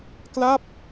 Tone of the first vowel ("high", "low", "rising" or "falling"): falling